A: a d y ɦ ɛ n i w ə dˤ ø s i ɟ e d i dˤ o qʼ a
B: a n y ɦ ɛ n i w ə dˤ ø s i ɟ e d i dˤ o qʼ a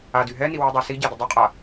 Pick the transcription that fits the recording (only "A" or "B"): A